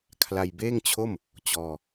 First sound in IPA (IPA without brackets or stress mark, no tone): kʰ